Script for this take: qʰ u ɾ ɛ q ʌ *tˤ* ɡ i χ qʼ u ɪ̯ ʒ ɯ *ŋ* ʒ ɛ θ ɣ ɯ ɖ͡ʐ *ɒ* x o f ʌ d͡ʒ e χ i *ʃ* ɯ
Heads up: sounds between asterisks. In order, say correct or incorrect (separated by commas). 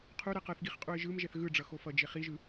incorrect, incorrect, incorrect, incorrect